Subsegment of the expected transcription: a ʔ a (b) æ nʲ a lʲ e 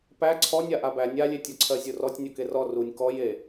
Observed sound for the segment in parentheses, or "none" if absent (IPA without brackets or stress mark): b